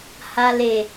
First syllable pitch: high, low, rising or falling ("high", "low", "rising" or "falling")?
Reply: low